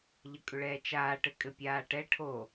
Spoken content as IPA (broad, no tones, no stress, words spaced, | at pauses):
ʎəkʼʏɭɛːt͡ʃaː ʈɘkʼɘpʲaːʈɛ ʈʰo